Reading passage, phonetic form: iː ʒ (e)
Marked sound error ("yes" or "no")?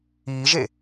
no